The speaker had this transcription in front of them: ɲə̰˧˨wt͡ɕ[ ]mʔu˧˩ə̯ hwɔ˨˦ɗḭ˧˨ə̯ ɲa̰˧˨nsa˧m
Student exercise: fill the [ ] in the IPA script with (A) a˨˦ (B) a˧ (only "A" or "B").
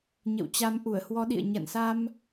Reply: A